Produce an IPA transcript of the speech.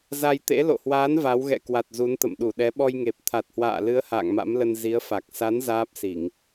z a˧ j t̪ ḛ˧˥ l o̰˧˨ h w aː˨˦ n v a˨˦ w ɣ ɛ̰˧˨ k w a˨˩ t̚ z u˨˦ n t̪ ə̰˧˨ m ɗ u˧˩ ɗ ɛ˨˦ ɓ ɔ˧ j ŋ e˨˩ p̚ t̪ʰ a˨˩ t̚ h w a̰ː˧˨ l ɨ˨˦ ə̯ h a̰ː˧˨ ŋ m a̰˧˥ m l ə˧ n z i˨˦ ə̯ f a˨˩ k̚ s a˨˦ n z aː˦˥ p̚ s i˧˩˨ ŋ

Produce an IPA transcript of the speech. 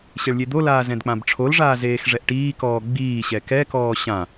ɕ e ɭ lʲ e d̪ o l aː z ɛ̃ d k͡p ã b ʈ͡ʂʰ o l ʐ aː z eː x ʐ ɛ ʔ ʈ iː k ɔː ɡ͡b iː ɕ ɛ k ɛ k ɔː ɕ ã

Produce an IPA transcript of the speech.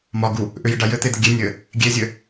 m ɒ ɡ u | ʔ ʏ j ɘ ɖ a j ɘ t̪ e d̪ ɘ ɡʲ e nʲ ɘ | ɡʲ e zʲ ɘ

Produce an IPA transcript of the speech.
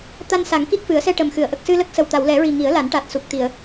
t̪ a˧ n s a˨˩˦ ŋ k i˦˥ k̚ f ɨ˨˩˦ ə̯ s ɛ˧ ʈ ə˨˩ m x ɨ˨˩˨ ə̯ ʔ ə˨˩ k̚ s ɨ˧ l ə˦˥ k̚ s ə˨˩ w t̪ a˨˩˨ w l ɛ˨˩˦ ɹ i˨˩ ŋ i˨˩˦ ə̯ l a˨˩˦ n ʈ a˨˩ t̚ s u˨˩ k̚ t̪ i˨˩˨ ə̯

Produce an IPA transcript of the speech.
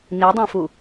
n i dˤ ẽ f u

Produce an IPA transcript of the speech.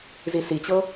z i s i t͡ɕ ɤ

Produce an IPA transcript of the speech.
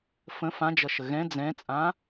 f ə̃ f ã d͡ʒ ʌ ʃ ə ɣ ɛ̃ d͡z ɛ̃ t͡sʼ ã

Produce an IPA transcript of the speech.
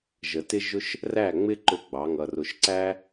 ʒ ə˨ t ɪ˦ ʒ ʊ˦ ʃ | r æ˦˨ ŋ͡m ɪ˦ ǃ ʊ˦ ɡ͡b ɑ˨˦ ŋ ʌ˧ r ʊ˧ ʃ ǀ æ˦

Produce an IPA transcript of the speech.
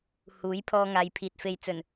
h uː˨˥ j pʰ ɔː˧ ŋ aː˨ j pʰ iː˨ t̚ f e˨˧ j t͡s ɵ˨˩ n

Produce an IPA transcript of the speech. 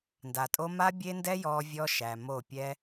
n d a˨ tʼ o˧ m a˦ bʲ e˦ n d ɛ˦ j ɔː˧ vʲ ɔ˧ ʃ æ˨ m o˦˨ pʲ ɛ˦

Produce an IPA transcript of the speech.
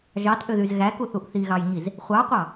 ʒ ɑ t ʔ ø ð y z ɣ æ k u θ u ʔ θ i ɣ ɑ j ɲ i z | χʷ ɑ qʷ ɑ

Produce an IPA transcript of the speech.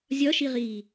zʲ ɒ ʃ i ʁ iː

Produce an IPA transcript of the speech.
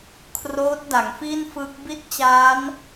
kʰ r oː˦˥ t̚ d a˩˦ ŋ f i˥˩ n f ɯ˦˥ k̚ b i˥˩ t̚ t͡ɕ aː˦˥ n

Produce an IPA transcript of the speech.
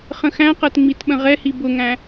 χ ə̃ x æ̃ q ɜ t ŋ͡m i t ɓ ə̃ ʁ ɛ h i b ʊ ŋ æ̃

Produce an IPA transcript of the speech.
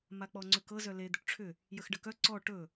m a k͡p ɔ ŋ͡ǀ ʏ k ɤ z œ l e d̪ ʏ ʈ ʈ͡ʂʰ ʏ | j ə x ɖ ə k œ ǀ ɔ ʈ ɵ

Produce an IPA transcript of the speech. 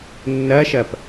nː ɐ ʃ ɐ p

